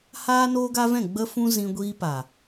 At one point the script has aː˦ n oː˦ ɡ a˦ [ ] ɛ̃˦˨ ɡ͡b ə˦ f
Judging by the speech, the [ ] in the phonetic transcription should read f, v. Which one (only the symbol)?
v